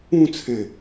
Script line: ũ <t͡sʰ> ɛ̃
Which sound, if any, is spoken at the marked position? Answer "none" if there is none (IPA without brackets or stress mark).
t͡sʰ